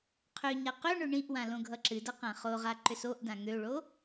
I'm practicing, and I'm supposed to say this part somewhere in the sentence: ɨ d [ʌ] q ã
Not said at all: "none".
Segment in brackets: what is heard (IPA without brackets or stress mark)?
ʌ